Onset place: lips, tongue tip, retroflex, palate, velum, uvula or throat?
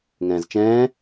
velum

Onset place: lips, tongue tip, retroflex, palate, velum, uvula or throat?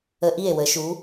throat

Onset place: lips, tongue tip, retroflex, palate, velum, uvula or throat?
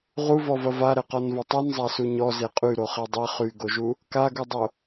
uvula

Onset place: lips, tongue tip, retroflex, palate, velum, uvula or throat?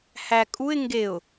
throat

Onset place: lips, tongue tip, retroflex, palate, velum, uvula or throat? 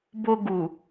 lips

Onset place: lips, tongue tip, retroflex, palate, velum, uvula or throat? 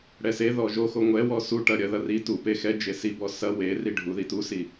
retroflex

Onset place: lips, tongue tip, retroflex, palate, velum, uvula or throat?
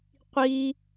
uvula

